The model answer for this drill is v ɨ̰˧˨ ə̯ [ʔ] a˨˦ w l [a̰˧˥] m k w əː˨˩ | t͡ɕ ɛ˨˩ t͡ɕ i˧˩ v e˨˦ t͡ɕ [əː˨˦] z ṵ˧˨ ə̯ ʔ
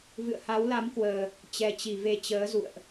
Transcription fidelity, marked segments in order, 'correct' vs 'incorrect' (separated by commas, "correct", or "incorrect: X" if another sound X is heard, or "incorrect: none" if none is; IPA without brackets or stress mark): incorrect: h, incorrect: a˨˦, correct